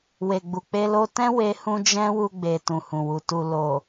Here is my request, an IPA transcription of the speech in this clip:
w e˨ ɡ͡b u˨ k͡p e˧ l o˧ t ɛ̃˦ w e˧ h ũ˧ d͡ʒ ɛ̃˦ w u˧ ɡ͡b e˨ t ũ˨ h ũ˨ w u˨ t u˨ l o˨

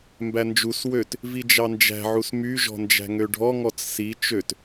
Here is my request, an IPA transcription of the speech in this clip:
m b æ n d͡ʒ u s w ø t | v i d͡ʒ ɑ n d͡ʒ æ̤ ʕ u s m y ʒ ɔ̤ n d͡ʒ æ̤ ŋ ø ɖʱ ɔ ŋ ɔ t͡s s i t͡ʃ ø t

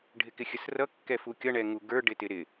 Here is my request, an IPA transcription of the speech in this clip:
ɖʱ ɪ k ɪ xʲ ə s r ʌ kː ɛ f u kʲ ʌ ɳ ɛ ŋ u ɡ ə˞ ɖ ɪ t ɪ ɾ ɪ

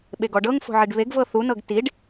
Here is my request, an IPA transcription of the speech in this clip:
ɓ e ɡ ɔ ɖ ɤ ŋ f o̤ ʕ i ɖ β e ɡ v ɤ θ u n ɤ ɡ t i ɖ

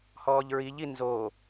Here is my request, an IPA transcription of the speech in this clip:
h ɔː ʎ ɹ i ʎ i n z o

